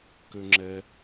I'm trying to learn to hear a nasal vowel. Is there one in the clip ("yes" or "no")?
no